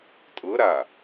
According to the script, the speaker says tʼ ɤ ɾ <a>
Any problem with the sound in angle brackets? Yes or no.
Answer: no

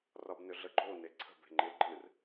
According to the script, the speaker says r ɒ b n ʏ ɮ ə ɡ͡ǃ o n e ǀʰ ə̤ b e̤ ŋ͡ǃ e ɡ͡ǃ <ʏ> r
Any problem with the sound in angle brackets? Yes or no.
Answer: yes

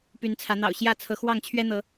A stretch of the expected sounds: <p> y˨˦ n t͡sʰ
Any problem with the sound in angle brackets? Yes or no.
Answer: no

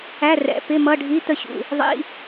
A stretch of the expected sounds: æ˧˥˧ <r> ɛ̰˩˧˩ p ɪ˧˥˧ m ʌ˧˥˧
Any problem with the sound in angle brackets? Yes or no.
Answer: no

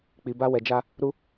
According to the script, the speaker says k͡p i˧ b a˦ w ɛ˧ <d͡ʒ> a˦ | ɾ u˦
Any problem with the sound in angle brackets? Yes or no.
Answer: no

